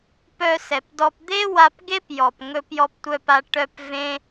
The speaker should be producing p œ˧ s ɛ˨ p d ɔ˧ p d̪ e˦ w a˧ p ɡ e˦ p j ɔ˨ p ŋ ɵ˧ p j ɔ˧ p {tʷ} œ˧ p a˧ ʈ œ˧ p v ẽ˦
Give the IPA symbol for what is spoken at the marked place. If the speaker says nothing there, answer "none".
tʷ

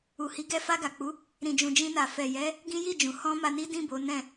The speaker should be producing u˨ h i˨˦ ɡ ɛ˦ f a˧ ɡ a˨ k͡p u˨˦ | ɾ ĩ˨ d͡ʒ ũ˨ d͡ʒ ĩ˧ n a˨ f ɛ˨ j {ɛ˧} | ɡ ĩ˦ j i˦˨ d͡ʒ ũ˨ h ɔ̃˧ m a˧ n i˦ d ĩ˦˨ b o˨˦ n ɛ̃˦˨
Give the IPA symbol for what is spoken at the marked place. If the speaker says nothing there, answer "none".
ɛ˨˦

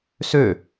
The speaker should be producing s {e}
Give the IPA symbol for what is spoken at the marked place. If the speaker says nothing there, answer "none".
ø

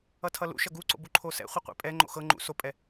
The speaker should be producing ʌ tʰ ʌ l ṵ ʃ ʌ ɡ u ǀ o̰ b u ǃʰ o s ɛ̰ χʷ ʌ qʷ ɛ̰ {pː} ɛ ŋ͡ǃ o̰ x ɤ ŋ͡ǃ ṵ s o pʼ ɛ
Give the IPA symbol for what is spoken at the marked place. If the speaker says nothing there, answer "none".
pʼ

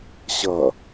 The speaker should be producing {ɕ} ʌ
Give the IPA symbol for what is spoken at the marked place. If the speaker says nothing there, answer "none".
ɕ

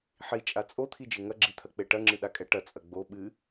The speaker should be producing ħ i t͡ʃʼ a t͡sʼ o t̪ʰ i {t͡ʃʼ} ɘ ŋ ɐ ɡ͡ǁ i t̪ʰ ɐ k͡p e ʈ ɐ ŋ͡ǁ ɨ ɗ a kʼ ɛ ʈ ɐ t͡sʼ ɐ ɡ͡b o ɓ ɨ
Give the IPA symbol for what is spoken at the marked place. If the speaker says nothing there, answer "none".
d͡ʒ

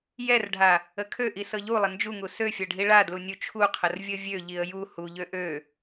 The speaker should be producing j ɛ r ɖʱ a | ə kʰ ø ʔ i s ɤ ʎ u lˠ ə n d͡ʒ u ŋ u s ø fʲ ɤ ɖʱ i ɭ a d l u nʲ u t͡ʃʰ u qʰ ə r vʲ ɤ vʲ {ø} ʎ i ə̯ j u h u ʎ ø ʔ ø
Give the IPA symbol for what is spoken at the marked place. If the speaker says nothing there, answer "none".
ø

